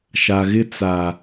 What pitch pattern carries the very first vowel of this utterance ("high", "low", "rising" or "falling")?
low